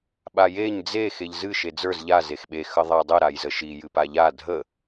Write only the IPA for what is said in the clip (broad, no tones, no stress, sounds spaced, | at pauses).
ɓ a j e ɲ d͡z e x e ʎ z ɨ ʃ e d͡z ə˞ z ʎ a z e x ɓ e x ə ðˤ a dˤ ɨ ɾ a j z ə ʃ i j ɨ p a ʎ a dʱ ə